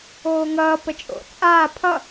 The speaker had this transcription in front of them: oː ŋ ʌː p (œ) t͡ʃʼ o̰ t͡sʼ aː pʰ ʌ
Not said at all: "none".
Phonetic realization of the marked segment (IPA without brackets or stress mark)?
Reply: ə